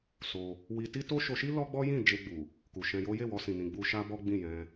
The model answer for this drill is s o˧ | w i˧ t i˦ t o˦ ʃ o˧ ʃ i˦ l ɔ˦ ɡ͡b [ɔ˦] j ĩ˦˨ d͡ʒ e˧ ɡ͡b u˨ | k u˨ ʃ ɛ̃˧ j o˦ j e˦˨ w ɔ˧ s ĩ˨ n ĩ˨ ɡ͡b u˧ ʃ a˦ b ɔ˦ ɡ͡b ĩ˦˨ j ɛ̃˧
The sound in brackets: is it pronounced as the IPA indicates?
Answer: yes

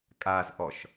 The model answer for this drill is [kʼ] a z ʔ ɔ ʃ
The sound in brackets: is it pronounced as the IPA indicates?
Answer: yes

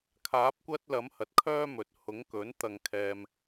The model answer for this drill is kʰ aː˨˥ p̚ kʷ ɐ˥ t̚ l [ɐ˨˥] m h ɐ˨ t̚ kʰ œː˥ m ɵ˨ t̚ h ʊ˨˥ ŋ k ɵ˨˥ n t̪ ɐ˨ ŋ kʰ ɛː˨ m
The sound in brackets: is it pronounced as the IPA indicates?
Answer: yes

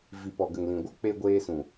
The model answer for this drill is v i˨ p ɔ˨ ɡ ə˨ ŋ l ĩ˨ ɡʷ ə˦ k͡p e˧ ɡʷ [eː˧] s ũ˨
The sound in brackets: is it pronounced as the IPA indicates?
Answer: yes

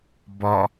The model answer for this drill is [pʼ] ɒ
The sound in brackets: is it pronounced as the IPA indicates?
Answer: no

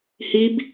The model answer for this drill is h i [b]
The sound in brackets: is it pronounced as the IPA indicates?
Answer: yes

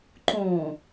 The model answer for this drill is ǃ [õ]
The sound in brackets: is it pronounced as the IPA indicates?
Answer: yes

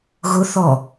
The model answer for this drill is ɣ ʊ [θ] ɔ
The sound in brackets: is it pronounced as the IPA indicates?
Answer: yes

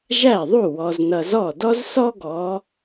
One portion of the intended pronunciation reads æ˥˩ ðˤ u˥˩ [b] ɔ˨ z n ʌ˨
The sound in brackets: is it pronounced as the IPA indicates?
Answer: no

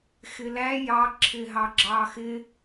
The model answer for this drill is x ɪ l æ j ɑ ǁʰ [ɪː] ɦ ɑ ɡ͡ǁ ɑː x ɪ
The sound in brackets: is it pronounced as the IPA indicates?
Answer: yes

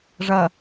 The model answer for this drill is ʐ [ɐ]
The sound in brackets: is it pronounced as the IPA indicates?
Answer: yes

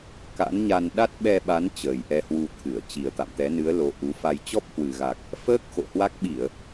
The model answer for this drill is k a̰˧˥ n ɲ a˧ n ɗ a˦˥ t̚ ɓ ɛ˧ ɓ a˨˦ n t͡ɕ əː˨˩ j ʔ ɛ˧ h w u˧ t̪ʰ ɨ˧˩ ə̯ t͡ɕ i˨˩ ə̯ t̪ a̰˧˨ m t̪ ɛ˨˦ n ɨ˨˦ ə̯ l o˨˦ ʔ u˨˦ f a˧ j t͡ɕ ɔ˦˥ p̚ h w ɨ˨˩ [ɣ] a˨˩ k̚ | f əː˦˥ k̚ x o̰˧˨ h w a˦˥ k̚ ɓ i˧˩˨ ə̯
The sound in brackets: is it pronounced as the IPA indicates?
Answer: yes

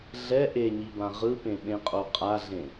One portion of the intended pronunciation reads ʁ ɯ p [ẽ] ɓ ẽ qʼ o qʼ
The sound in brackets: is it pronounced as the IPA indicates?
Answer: yes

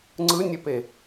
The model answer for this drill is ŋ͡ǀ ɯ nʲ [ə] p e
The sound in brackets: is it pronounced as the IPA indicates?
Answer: yes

